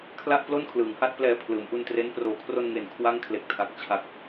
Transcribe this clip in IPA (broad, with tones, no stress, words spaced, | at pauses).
kʰla˥˩ʔplo˥˩nkʰlɯː˩˦ŋha˥˩t̚ plɛː˧pʰlɯː˩˦mʔu˧ntre˦˥n proː˩˦kʰro˧nŋe˨˩n kʰwa˥˩ŋ kʰle˨˩k̚tʰa˨˩k̚ t͡ɕʰa˨˩k̚